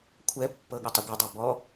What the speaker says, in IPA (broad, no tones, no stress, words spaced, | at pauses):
kʷʰɛpːɤɠətˤə ɡʷɤdˤo bɔ